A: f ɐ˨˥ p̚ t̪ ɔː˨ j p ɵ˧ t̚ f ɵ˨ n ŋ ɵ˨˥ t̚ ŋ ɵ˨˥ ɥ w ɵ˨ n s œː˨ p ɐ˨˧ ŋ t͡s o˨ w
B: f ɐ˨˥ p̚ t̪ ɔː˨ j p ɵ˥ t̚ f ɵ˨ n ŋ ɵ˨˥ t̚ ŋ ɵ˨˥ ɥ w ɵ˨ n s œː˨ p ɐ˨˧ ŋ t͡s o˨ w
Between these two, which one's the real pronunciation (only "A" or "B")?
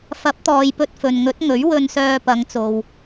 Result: A